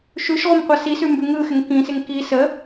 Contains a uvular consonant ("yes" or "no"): yes